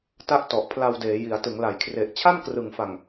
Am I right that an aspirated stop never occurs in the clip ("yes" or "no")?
no